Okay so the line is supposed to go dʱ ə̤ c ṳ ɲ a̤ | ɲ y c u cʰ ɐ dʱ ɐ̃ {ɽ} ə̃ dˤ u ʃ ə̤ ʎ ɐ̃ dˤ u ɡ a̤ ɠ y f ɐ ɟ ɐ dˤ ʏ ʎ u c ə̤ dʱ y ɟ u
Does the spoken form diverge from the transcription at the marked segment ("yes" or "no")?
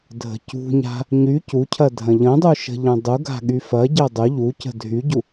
yes